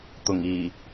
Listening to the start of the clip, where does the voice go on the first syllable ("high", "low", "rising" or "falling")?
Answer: low